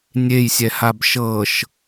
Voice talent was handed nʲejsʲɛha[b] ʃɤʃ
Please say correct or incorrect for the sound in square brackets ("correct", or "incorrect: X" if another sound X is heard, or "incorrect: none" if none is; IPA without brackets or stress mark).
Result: correct